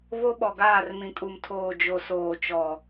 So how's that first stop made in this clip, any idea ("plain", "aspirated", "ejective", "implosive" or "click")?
implosive